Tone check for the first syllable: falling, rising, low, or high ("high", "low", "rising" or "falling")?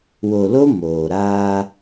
low